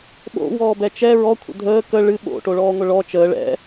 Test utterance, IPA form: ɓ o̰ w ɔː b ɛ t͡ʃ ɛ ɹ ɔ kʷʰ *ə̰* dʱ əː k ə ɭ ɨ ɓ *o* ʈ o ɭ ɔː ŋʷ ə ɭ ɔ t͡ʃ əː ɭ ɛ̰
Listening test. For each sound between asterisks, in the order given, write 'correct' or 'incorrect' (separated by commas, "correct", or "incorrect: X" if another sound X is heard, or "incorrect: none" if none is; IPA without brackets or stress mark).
correct, incorrect: o̰